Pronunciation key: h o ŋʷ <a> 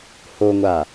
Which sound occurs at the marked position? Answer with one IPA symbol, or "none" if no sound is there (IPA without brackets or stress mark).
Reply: a